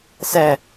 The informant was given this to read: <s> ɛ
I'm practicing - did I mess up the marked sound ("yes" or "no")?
no